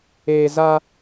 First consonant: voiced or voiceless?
voiced